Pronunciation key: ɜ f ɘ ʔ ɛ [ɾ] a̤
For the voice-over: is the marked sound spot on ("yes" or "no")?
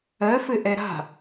yes